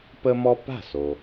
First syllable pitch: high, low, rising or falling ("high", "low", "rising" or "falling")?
high